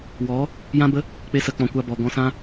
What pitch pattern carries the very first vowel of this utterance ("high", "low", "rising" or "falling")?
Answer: rising